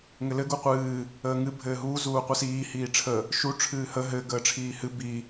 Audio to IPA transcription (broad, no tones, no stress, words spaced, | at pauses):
ŋɘlɘ ɡuqʷɨː | əːŋɨ bʱɘːɦuː zuːqʷɨsiː hiːʈ͡ʂʰə | ʃu ʈ͡ʂʰɨːhə ɦɘ ɡəːʈ͡ʂʰiːhɨ bi